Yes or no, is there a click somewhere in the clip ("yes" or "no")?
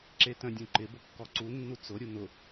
yes